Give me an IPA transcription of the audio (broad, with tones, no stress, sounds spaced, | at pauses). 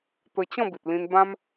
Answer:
t̪ ə˧ t͡ɕ ɔ̃˥˧ b i˨ t̚ l ĩ˧ n b ã˦ m